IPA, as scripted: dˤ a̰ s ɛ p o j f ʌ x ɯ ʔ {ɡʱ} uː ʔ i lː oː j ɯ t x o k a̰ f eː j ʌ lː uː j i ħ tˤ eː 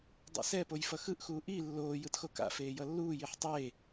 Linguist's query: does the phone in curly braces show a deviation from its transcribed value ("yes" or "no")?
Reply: yes